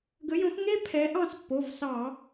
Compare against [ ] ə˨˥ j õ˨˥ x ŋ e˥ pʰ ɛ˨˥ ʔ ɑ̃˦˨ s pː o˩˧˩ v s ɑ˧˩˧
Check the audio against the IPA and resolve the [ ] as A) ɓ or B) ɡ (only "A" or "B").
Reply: B